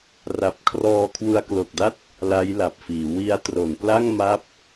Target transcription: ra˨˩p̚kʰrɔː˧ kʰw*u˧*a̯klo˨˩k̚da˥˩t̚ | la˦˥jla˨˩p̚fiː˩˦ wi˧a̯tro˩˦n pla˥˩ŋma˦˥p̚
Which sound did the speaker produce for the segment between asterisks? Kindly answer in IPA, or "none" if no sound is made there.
u˧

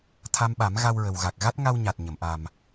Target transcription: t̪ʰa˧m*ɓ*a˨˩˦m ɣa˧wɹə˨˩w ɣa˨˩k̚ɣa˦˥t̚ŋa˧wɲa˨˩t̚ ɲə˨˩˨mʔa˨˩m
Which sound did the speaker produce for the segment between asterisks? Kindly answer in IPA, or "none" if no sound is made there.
ɓ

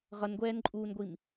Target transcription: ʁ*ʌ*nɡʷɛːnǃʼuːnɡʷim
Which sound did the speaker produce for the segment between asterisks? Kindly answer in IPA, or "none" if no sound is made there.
ʌ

